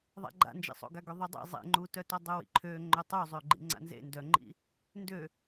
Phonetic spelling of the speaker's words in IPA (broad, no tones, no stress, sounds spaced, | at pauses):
ðˤ a̰ ɡ͡ǃ a̰ n d͡ʒ ḭ sˤ o̰ ɡ a ɡ ø ðˤ u dˤ ḭ zˤ ḛ ŋ͡ǃ u t œ t ɔ dˤ o w ḭ ǃʰ ø ŋ͡ǃ ø tˤ u zˤ ø ɡ͡ǃ ḭ ŋ͡ǀ a̰ n z ḛ n d œ ŋ͡ǃ ḭ | n d ø